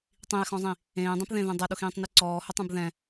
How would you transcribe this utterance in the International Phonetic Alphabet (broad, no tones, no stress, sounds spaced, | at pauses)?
tˤ ĩ e̯ x ɔ̃ zˤ ĩ | ẽː dˤ ɛ̃ p ð ẽ ð ẽ dˤ ɘ ɗ ʊ x ĩː tˤ n i ǀ ɔː h ʊ tˤ ɛ̃ b ð ɛ̃